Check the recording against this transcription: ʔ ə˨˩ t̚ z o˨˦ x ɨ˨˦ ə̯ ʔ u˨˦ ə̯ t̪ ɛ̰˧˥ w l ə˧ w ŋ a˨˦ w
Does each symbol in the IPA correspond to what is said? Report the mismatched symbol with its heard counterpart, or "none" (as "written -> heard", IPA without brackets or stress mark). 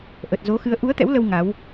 none